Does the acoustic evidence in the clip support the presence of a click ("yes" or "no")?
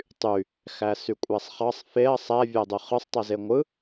no